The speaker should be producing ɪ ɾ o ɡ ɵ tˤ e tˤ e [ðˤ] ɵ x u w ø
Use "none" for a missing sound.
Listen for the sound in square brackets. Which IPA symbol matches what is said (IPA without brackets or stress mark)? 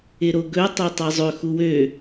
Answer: zˤ